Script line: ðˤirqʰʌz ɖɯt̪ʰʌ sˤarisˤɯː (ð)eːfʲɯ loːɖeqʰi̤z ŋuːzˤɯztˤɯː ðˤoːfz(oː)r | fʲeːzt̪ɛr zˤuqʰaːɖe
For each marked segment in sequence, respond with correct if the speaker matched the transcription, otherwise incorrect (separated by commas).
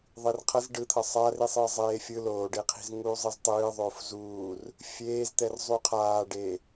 incorrect, incorrect